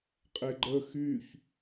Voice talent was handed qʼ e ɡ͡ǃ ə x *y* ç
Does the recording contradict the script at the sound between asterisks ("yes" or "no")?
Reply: no